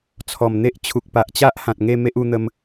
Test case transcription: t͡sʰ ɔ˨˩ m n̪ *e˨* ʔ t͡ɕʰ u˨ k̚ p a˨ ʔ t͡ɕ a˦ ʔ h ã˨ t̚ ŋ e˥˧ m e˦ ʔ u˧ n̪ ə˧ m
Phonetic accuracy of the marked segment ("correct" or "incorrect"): incorrect